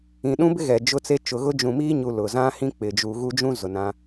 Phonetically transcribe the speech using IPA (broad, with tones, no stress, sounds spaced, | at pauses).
ĩ˨ ɗ ũ˦ b ɪ˦ ɣ ɛ˨ d͡ʒ ʊ˦ t͡s e˦ t͡ʃ ʊ˨ ɣ ʊ˦ d͡ʒ ũ˨ m iː˦ ɲ u˨ l ʊ˨ z ã˦ h ĩ˦ k͡p ɪ˨ d͡ʒ uː˨ ɣ u˦ d͡ʒ ũ˦ z ʊ˨ n ã˦